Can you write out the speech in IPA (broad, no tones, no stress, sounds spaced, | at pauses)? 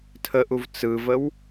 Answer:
tʰ ə ʔ u v t͡s ɯ v ə w